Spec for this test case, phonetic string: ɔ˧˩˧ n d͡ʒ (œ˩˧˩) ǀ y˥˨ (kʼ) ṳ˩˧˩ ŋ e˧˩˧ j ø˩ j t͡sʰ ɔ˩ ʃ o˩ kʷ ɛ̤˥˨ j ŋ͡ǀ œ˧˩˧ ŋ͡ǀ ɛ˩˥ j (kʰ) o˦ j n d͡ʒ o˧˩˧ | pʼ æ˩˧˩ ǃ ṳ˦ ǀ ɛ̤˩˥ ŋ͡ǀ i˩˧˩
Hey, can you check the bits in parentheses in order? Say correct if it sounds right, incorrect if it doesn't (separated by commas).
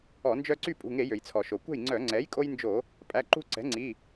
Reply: incorrect, incorrect, incorrect